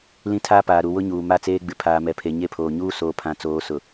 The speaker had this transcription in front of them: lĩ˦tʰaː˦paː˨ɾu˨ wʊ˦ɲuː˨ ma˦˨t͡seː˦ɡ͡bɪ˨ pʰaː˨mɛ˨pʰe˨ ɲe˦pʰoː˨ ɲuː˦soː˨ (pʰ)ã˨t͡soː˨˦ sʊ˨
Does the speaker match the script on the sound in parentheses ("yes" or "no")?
yes